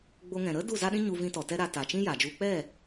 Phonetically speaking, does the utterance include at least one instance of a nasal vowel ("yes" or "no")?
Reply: yes